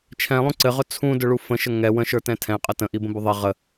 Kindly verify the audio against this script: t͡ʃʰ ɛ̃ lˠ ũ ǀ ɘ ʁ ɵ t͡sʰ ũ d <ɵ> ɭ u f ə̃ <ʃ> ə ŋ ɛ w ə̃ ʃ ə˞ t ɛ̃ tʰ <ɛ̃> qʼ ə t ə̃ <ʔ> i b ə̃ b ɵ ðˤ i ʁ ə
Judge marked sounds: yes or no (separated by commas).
yes, yes, yes, yes